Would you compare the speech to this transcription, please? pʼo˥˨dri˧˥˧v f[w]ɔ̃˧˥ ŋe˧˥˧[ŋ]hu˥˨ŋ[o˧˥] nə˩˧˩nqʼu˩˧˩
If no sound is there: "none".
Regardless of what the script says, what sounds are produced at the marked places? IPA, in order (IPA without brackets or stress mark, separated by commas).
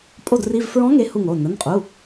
ɹ, none, o˩˧˩